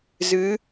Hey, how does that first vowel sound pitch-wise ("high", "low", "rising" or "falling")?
rising